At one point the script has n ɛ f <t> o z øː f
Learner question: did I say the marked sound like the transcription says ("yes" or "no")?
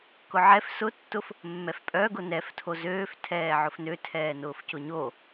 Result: no